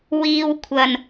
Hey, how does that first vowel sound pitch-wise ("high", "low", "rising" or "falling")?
low